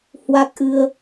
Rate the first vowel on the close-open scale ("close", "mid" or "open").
open